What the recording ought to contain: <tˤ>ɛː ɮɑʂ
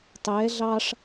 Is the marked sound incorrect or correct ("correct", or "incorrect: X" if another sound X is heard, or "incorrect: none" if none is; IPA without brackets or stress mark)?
correct